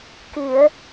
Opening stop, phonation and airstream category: plain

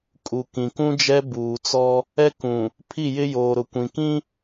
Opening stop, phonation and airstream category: ejective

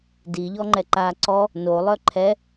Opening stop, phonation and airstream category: plain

